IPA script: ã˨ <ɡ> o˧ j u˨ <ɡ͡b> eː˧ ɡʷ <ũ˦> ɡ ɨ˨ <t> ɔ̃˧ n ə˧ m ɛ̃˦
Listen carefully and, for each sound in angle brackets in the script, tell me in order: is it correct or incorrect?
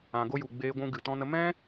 correct, correct, incorrect: ũ˧, correct

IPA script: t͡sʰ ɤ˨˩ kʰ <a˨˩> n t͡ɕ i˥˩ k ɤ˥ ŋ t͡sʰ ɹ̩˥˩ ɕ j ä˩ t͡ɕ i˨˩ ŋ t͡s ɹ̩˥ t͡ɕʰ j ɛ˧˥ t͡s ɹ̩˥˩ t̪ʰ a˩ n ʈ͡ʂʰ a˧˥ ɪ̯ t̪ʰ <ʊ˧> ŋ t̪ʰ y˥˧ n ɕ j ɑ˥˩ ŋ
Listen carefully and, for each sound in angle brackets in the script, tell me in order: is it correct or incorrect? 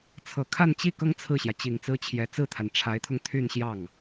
incorrect: a˥˧, correct

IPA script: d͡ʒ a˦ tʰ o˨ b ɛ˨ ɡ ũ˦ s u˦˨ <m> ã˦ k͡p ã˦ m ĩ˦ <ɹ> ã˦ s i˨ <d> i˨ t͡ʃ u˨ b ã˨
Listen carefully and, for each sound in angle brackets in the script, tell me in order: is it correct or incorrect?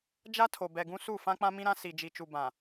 incorrect: f, incorrect: ɾ, incorrect: d͡ʒ

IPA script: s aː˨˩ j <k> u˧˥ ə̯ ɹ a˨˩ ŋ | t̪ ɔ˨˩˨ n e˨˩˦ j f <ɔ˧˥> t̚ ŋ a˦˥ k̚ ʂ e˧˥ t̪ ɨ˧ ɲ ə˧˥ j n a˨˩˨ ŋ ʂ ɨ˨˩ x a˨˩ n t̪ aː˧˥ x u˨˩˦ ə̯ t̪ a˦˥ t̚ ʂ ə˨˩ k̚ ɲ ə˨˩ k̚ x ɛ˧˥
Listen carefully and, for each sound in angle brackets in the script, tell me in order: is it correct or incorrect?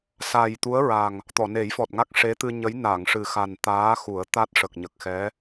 incorrect: t̪, incorrect: ɔ˨˩

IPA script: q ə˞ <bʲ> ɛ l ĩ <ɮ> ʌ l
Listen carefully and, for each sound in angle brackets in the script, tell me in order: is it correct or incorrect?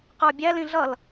correct, correct

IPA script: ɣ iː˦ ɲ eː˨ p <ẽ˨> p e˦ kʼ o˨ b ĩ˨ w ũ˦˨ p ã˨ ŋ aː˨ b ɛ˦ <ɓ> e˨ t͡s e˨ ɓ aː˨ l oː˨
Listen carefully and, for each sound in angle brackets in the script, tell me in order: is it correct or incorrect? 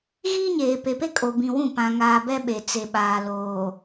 incorrect: e˨, correct

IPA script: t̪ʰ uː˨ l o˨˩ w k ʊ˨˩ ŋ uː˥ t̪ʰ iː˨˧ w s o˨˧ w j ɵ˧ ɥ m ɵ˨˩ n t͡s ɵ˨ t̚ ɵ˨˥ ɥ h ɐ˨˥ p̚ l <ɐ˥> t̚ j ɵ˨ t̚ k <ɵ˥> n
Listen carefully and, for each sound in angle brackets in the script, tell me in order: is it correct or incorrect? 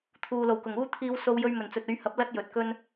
correct, correct

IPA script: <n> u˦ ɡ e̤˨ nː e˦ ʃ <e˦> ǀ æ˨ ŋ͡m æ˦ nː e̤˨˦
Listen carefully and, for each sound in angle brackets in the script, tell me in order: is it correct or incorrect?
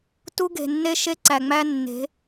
incorrect: t, correct

